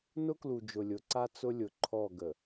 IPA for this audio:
n ʊ˦ k l u˨ d͡ʒ ʊ˨ lʲ ʊ˨˦ ǀ a˦ t͡s ʊ˦ lʲ ʊ˨ ǃʰ ɔ˦˨ ɡ ə˨

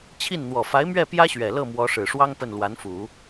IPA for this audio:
t͡ɕʰ i˥˩ n n̪ w ɔ˨˩ f a˧˥ ɪ̯ m ɥ ɛ˥˩ p j ä˥ ɕ ɥ ɛ˨˩ l ɤ˥˩ m w ɔ˧˥ ʂ ɻ̩˨˩ ʂ w ɑ˥ ŋ p ə˥˩ n l w a˧˥ n f u˨˩˦

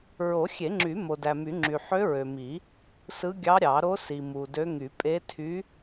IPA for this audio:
ɹ o˨˩˦ xʲ e˨˩˦ ŋ͡ǁ y˨˩˦ m o˨ d æ˨ m y˨˩˦ ŋ͡ǁ y˨ ħ ø˧˥ ɹ ø˨ m i˨˩˦ | s ɯ˧˥ ɡʲ ɑ˧˥ ɾʲ ɑ˨˩˦ ɾ o˧˥ s i˨ m u˨ d ø˧˥ ŋ y˨˩˦ pʼ e˧˥ tʰ y˧˥

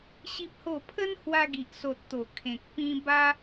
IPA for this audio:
ɕ i˦ p̚ h o˥˧ pʰ ə˦ n h w a˧ ɡ i˨ ʔ s o˨ t̚ t̪ o˨˩ kʰ ẽ˨ k̚ p ĩ˧ b a˦

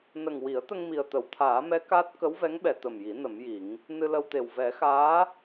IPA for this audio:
n ə˨˩ ŋ w i˨˩˦ ə̯ t̪ ə˧ ŋ m i˨˩ ə̯ t̪ ə˨˩˨ w t̪ʰ aː˨˩˦ m ɛ˧˥ k a˦˥ t̚ k ə˧˥ w v ɛ˧˥ ŋ ɓ ɛ˨˩˨ t̪ ə˨˩ m j i˨˩˦ n ə˨˩˦ m j i˨˩˦ ŋ | n ɨ˧ l ə˧ w t̪ e˨˩ w v ɛ˨˩˦ x aː˧˥

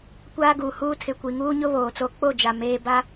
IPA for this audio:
kʷ aː˦ ɡ uː˨ h uː˦ tʰ ɪ˨ kʷ i˨ ŋ uː˦ ɲ ʊ˦ β oː˨ t͡s o˦ k͡p o˦˨ d͡ʒ a˨ m eː˦ b a˦

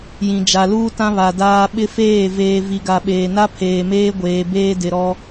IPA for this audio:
j ĩ˨ d͡ʒ a˨ l uː˦ t ã˦ β a˨ d aː˦ ɓ ɪ˦ f eː˦˨ v eː˨ v i˨ ɡ a˨ ɓ eː˨ n a˦ pʰ eː˨ m eː˦ ɡʷ eː˨ b eː˦ d ɪ˨ ɾ ɔ˦

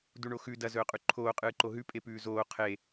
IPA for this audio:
d u ɳ o x ʉ d ɐ z ɵː qʼ ʉ ǃʰ oː qʼ ɨː ǃ o ɦ ʉ pʼ e p ʉː z oː qʰ e

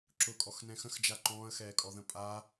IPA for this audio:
ǁ ʊ kʼ ɔ x n ɛ̃ x ə̃ x d͡ʒ a ǃ ɔ̃ː ə̯ x ɛː kʼ ɔ ð ə̃ pʼ a

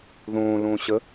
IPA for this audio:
ð õː l õː ɕ ə

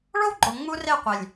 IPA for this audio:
ɭ o˦ w ɡ͡ǃ o˨ ŋ͡m u˦ r e˦˨ qʷ e˨ lʲ

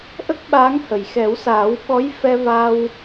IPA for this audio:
ʔ ə˦˥ k̚ ɓ aː˧˥ ŋ h ə˨˩ j x ɛ˨˩˦ w s aː˨˩˦ w ɓ ɔ˧˥ j f ɛ˧ v aː˧ w

